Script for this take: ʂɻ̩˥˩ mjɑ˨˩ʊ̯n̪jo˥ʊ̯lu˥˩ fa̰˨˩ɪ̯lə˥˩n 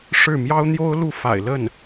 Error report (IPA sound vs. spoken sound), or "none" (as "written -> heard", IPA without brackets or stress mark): ɑ˨˩ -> ɑ˥